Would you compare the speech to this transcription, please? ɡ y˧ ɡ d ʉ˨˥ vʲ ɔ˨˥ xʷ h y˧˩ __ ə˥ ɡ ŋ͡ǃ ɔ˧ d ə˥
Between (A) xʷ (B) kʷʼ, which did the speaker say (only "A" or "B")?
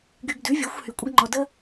B